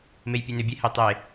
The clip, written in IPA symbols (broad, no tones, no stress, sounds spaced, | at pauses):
m e j pʲ ɛ n ʏ bʲ ɛ h e tˤ e